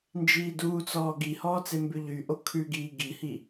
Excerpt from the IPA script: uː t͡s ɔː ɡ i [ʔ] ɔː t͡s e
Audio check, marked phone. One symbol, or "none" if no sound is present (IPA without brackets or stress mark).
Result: h